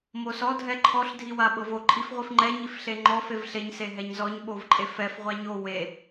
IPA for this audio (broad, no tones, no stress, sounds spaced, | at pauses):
m o s ɔ dʱ ɛ ǃʰ ɔ ɬ dʱ i w a ɓ ɤ v o ǃʼ i f ʁʷ i f ŋ͡ǃ ɛ ɲ i f ɬ e ŋ͡ǃ ɔ f e v ɬ e ɲ s e ɦ ɛ ɲ z ɔ ɲ ɓ o v ǃʼ e f ɛ f ʁʷ a ɲ o w e